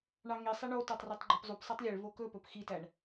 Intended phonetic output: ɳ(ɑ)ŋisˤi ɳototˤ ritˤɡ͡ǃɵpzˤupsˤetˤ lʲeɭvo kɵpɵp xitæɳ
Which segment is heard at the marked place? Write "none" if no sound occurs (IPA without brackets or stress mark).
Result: ɑ